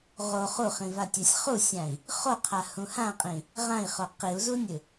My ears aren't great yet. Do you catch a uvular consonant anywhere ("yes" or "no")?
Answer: yes